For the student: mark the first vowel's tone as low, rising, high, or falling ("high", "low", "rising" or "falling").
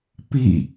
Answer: falling